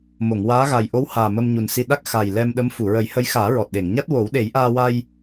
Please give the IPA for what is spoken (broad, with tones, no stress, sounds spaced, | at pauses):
m o˨˩˨ ŋ w aː˧˥ ɣ a˨˩ j ʔ o˧˥ w h aː˨˩ m ə˧ m ɲ u˨˩ n s i˧ ɗ a˦˥ k̚ x a˨˩ j l ɛ˧ m ɗ ə˧˥ m f u˨˩˨ ɹ ə˨˩˦ j h ə˧˥ j x aː˨˩˦ ɹ ɔ˨˩ t̚ ɗ e˨˩˨ ŋ ɲ a˦˥ t̚ w o˨˩˦ w ɗ e˨˩˦ j ʔ aː˧ w a˧ j